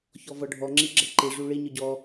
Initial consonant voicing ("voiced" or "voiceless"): voiceless